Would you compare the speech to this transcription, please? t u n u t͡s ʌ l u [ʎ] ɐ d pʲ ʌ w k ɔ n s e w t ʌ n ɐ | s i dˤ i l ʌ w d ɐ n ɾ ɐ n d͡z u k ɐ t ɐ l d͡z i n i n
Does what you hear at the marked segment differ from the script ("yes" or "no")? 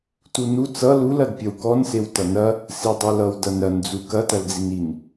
yes